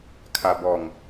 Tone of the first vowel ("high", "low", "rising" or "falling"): low